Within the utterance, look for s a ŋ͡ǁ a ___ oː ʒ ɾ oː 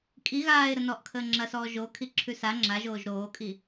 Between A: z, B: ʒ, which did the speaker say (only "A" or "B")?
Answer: B